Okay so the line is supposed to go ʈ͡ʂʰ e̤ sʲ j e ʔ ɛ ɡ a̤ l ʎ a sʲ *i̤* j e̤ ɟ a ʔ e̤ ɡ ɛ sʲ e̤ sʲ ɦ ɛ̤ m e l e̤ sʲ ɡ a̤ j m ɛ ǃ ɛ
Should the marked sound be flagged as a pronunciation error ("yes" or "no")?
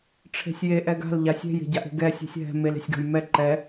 yes